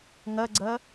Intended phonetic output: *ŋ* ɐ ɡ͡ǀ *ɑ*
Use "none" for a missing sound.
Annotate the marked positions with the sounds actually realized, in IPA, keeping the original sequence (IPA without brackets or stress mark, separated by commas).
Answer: ŋ, ɐ